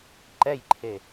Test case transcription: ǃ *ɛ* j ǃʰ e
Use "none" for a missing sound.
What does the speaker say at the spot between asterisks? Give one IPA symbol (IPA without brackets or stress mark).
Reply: ɛ